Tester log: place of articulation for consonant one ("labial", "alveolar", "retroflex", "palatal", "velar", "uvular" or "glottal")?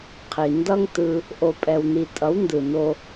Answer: uvular